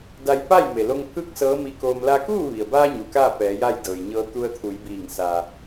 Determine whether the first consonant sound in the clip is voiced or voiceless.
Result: voiced